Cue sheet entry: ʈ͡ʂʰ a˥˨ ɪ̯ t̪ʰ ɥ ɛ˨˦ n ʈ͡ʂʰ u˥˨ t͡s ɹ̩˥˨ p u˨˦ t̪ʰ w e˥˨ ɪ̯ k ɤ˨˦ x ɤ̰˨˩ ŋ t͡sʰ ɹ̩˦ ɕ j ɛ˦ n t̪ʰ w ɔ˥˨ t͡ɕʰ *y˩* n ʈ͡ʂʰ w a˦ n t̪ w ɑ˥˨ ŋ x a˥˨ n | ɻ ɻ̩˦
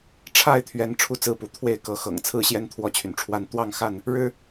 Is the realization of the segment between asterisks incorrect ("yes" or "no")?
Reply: no